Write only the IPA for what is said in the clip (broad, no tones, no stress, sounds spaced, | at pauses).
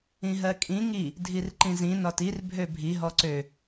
ĩ ɦ ɜ kʼ ĩ ŋ i | dʱ i r ǃ ĩ z ĩ n ɒ t i r bʱ ø bʱ i ɦ ɔ ǀ ø